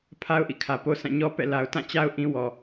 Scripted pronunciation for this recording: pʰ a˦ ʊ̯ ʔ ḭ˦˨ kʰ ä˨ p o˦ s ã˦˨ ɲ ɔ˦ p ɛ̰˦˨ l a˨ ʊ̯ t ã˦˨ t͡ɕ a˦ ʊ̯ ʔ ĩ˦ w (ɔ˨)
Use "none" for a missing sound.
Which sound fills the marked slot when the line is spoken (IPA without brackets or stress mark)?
ɔ˨